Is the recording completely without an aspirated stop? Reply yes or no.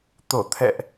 no